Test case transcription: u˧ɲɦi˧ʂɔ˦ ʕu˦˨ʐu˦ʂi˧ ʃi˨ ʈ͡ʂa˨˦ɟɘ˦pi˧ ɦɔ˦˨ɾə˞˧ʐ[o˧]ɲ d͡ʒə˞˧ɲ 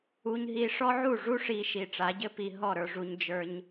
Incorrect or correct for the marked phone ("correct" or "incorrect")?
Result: incorrect